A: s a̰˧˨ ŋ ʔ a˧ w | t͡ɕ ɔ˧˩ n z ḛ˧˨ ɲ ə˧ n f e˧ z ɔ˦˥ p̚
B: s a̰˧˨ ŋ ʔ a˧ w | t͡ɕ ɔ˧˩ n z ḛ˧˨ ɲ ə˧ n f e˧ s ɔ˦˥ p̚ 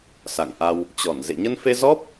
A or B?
A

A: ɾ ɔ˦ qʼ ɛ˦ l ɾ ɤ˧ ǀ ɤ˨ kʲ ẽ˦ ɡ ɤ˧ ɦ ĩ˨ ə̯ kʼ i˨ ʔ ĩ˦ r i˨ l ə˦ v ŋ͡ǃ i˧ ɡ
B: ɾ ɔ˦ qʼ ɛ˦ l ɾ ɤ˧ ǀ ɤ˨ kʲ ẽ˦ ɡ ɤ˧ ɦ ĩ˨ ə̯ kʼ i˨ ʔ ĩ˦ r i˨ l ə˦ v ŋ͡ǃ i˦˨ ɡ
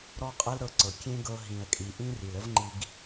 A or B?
A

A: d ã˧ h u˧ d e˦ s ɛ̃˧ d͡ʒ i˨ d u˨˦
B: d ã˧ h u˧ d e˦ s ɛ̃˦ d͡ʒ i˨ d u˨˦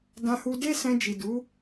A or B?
A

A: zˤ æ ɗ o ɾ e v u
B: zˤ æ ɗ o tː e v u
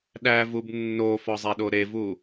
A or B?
A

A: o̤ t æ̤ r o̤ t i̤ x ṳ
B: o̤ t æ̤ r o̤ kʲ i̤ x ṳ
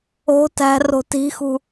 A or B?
A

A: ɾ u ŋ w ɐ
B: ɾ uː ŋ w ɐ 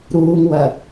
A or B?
B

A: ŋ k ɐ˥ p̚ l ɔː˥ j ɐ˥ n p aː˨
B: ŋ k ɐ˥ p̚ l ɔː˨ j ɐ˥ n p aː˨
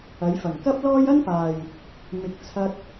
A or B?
A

